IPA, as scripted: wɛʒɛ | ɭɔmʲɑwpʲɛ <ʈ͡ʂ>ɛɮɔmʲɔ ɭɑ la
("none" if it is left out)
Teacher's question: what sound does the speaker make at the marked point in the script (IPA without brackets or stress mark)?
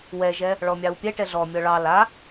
ʈ